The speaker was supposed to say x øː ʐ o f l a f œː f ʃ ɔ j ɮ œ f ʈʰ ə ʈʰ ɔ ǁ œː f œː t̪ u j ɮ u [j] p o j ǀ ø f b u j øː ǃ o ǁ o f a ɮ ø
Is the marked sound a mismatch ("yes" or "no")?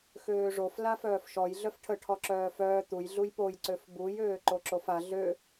no